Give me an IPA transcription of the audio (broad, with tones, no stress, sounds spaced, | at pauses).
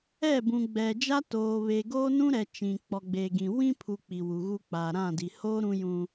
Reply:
ɛ˦˨ b ũ˨ ɡ͡b ɛ˨ d͡ʒ a˦ t oː˨ β e˨ ɡ oː˦ n ũ˦ ɾ ɛ˨ t͡ʃ ĩ˨ k͡p ɔ˨ ɡ͡b e˨ ɡ ĩ˨ w ĩ˦ pʰ u˨ k͡p i˨ w u˨ ɣ u˦ k͡p a˨ ɾ ã˦˨ d i˨ h oː˦ ɾ ũ˦ j ũ˦